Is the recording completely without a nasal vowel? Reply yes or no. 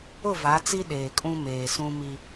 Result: no